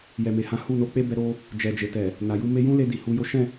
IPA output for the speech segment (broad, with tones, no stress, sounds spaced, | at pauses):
j ɛ˨ m e˨ h ã˨˦ h u˦˨ n o˨˦ k͡p e˦ b ɛ˧ ɾ o˧ | d͡ʒ ɛ˨ d͡ʒ e˨ t ɛ˨ | n a˨ j u˧ m e˧ j ũ˦ l e˧ d i˨ h u˧ j o˦ ʃ ɛ̃˦˨